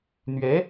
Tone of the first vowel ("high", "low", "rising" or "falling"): rising